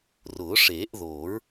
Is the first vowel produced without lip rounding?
no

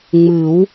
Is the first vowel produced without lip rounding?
yes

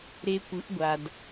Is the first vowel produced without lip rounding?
yes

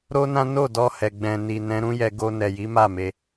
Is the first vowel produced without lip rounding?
no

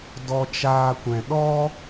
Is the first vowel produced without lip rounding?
no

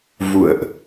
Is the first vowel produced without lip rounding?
no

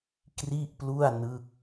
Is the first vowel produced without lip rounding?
yes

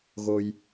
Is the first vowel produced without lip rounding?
no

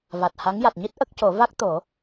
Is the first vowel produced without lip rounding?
yes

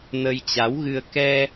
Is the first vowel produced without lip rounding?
yes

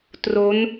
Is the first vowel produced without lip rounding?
no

